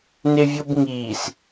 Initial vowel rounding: unrounded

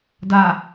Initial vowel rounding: unrounded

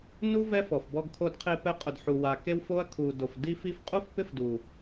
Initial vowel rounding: rounded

